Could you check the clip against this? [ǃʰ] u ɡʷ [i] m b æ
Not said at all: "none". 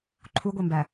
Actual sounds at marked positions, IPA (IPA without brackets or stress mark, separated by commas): ǃʰ, e